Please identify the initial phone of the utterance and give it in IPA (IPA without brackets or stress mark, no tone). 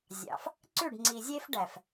zʲ